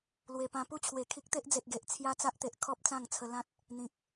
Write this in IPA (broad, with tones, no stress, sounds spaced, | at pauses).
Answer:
l w e˨˩ p ã˧ p u˥˧ t͡ɕʰ w e˨˩ kʰ i˦ k̚ t̪ e˦ ʔ d͡z e˨ t̚ ɡ e˨ ʔ t͡sʰ j a˦ t͡s a˦ ʔ t̪ e˨ ʔ kʰ ɔ˦ p̚ t͡s ã˥˧ ŋ t͡sʰ ə˧ l ã˦ t̚ | n̪ ĩ˨ k̚